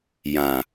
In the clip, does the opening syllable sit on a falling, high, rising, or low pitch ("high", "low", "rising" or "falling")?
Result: low